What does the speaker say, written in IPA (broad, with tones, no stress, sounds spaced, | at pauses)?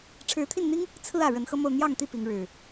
ʈ͡ʂʰ ɻ̩˨˦ t̪ʰ i˥˨ n n̪ i˦ ŋ | t͡sʰ ɹ̩˦ ä˨˩ ɻ ə˨˦ n x ɤ˦ m o˥˨ ʊ̯ n̪ j ɑ˥˨ ŋ t̪ i˥˨ p i˨˦ ŋ ɻ ɻ̩˨˩